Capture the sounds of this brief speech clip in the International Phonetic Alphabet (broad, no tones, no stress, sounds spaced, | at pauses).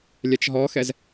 lʲ ɛ t͡ʃ ɦ ɔ x ɛ z